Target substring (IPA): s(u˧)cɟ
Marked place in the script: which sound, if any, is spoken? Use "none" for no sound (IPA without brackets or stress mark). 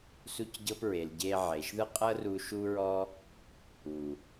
u˦